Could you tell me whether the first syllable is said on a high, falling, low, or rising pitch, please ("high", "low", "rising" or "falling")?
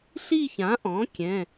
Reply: falling